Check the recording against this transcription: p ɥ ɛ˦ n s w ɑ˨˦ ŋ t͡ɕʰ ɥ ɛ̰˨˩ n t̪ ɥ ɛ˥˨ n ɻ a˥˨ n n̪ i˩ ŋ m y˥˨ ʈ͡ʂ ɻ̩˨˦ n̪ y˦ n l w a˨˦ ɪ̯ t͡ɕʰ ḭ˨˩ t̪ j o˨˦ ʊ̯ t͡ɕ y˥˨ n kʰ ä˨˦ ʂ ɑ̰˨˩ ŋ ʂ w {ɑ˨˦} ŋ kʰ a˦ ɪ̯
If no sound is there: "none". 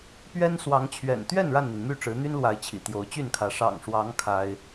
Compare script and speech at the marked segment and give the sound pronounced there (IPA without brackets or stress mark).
ɑ˨˦